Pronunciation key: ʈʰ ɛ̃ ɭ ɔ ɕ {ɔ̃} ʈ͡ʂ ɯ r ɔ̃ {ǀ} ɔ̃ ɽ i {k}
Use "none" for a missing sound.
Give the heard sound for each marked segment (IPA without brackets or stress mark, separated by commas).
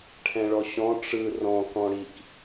ɔ̃, k, k